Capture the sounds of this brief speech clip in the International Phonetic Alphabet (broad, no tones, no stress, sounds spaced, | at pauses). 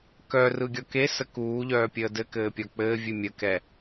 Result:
k œ r ɯ ɡʲ ɔ k e s ə k uː ʎ œː pʲ əː d ɘ k ɘː pʲ ɔ k͡p ɘː vʲ ɨ mʲ ə k ɛ